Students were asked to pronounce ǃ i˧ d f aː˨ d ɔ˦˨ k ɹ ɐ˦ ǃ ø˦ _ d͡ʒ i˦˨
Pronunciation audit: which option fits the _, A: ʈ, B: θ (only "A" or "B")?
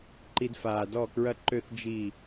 B